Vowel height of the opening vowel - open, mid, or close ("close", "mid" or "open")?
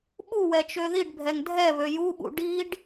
close